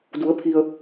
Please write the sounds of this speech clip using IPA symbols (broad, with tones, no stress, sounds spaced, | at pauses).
d u˩˧ ə̯ pʰ i˩ ə̯